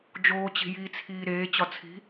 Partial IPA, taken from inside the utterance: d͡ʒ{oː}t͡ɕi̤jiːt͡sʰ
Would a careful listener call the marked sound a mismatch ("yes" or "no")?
no